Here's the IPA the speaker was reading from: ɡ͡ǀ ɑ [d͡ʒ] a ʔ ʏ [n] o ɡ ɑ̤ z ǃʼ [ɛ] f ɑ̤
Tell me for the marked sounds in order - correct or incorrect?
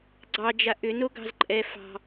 correct, correct, correct

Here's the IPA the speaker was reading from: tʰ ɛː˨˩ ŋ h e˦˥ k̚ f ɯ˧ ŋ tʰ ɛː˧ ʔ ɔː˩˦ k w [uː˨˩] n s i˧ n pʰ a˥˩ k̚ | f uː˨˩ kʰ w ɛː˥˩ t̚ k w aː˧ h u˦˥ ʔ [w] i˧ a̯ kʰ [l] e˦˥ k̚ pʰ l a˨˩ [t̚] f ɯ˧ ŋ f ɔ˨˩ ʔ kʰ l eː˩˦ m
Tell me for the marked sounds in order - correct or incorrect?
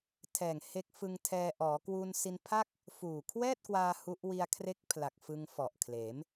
incorrect: uː˧, correct, incorrect: r, incorrect: k̚

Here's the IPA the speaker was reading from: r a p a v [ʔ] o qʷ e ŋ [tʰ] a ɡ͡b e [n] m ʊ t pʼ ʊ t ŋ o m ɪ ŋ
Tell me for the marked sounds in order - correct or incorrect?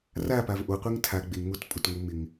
correct, correct, incorrect: ŋ

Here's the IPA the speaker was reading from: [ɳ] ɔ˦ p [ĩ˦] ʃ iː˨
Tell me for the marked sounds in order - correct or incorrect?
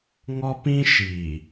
incorrect: ŋ, correct

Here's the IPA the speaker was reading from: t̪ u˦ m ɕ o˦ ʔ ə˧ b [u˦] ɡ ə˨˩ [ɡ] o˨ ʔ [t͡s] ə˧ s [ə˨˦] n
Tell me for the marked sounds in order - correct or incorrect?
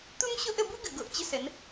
correct, correct, incorrect: t͡ɕ, correct

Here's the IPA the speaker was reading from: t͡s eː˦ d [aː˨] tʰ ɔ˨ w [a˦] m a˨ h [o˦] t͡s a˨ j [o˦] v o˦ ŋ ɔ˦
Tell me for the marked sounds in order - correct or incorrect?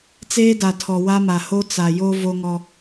incorrect: a˨, correct, correct, correct

